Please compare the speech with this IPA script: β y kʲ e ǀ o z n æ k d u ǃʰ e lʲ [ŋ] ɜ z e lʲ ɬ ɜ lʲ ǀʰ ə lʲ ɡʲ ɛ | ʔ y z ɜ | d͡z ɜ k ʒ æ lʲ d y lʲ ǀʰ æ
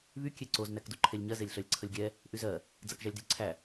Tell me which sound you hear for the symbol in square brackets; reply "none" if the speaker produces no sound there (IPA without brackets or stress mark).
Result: ɲ